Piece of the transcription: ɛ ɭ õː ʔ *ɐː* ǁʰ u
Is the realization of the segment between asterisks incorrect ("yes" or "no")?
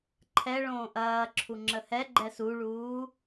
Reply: no